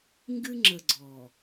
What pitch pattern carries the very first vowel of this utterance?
high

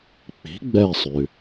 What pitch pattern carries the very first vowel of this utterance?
rising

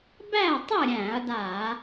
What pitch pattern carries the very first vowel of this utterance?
falling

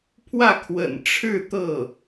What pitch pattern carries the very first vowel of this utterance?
falling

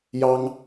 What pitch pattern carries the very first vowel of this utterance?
high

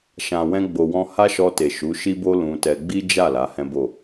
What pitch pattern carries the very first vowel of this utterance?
low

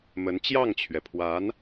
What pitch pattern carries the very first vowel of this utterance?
rising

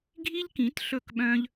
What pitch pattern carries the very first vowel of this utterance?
high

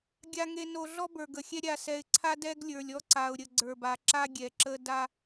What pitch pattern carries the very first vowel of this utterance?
low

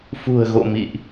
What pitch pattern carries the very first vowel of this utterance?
low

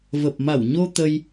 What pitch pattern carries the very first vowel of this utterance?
low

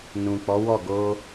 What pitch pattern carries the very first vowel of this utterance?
low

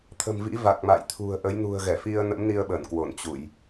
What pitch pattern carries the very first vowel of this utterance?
low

